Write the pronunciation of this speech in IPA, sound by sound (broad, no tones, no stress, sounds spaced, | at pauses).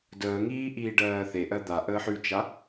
d əː ŋ iː ʔ iː ɖ ɜː θ e ʔ ɜ d̪ a ʔ əː ħ ʉ t͡ʃ a